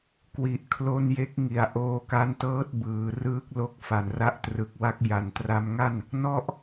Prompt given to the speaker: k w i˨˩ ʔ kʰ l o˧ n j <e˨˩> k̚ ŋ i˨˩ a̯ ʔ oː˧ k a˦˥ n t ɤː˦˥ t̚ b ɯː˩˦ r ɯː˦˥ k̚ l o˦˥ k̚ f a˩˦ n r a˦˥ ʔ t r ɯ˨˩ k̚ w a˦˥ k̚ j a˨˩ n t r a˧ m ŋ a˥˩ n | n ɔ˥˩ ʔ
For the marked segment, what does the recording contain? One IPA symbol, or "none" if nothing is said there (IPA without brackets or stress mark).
e˦˥